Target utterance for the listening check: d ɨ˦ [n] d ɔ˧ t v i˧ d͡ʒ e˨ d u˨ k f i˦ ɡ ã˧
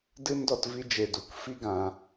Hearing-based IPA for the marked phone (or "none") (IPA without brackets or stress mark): n